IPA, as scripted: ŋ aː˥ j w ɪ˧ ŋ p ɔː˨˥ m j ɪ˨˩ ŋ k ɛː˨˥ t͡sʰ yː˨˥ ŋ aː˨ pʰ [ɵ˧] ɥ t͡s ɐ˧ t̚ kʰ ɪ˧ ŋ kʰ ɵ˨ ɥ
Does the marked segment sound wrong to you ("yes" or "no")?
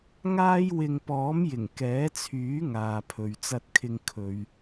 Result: yes